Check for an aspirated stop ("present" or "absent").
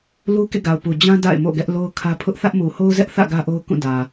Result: present